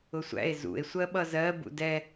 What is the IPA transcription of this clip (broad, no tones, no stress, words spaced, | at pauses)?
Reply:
ʊsʷæ̰e̯ zṵe̯ sʷɜɓʌzɜ bṵdɛ